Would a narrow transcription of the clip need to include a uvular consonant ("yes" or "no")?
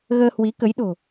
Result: no